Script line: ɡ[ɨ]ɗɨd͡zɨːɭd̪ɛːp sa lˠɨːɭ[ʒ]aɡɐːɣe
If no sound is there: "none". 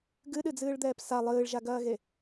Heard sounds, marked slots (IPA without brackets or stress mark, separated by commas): ɨ, ʒ